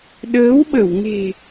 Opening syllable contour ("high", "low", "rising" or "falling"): rising